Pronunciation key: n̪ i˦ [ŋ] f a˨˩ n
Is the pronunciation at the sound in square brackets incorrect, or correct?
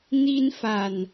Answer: incorrect